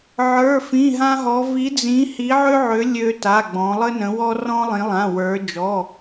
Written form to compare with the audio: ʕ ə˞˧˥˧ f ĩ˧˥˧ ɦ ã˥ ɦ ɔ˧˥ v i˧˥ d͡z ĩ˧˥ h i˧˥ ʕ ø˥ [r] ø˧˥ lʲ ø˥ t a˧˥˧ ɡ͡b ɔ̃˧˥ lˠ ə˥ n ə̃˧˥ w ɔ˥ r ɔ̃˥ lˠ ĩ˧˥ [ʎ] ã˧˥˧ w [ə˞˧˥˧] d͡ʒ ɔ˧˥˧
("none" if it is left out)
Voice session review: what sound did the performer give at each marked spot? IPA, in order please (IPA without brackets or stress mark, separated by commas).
ʕ, lˠ, ə˞˧˥